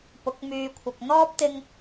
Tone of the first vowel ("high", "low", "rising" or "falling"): rising